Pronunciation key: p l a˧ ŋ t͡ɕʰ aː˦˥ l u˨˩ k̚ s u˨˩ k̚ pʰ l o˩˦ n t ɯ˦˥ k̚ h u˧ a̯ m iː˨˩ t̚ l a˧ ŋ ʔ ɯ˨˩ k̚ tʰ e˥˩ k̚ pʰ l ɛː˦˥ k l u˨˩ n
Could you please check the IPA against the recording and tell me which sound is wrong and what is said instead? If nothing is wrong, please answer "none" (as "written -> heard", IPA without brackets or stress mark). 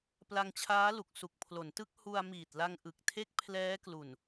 none